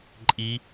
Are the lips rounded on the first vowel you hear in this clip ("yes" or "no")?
no